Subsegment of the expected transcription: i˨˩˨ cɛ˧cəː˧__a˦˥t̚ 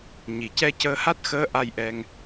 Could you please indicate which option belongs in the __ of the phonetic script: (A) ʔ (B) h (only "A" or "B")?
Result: B